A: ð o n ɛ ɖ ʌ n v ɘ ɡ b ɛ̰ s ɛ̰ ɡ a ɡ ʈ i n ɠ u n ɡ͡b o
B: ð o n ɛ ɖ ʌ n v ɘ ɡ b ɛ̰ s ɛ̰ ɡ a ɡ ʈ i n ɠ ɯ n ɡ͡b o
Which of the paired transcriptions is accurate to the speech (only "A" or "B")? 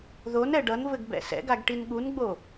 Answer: A